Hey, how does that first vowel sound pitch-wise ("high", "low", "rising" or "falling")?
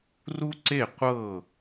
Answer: high